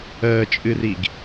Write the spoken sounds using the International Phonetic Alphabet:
əː t͡ʃʼ ɨ r i ɡ

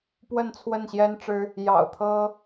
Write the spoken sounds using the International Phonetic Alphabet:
p w ə˥˨ n t͡sʰ w ə˥˨ n ɕ j ɛ˦ n ʈ͡ʂ ɻ̩˦ | j ɑ̰˨˩ ʊ̯ t̪ʰ ɤ˦

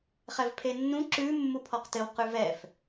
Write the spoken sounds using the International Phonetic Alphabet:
χ ɛ v pʰ e nː ũ ǁ ʉ mː u pʰ ɔ q t ɘ w q ʉ v ɛ f

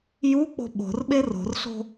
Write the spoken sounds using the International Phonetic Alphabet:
j u k͡p o̤ ɓ o̤ r ɓ e r o̤ r ɬ o̤

